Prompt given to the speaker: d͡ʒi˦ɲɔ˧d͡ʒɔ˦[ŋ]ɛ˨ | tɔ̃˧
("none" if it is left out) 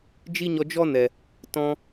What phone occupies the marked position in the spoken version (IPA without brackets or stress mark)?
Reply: n